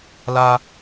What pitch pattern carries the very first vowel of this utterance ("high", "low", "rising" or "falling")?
high